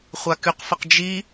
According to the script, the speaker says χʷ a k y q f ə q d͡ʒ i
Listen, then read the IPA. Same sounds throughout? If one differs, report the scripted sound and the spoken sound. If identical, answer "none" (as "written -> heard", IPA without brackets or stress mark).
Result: none